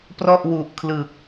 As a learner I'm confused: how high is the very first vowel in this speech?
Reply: mid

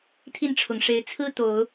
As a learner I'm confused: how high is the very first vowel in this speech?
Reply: high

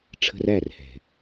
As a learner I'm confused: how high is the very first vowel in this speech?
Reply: mid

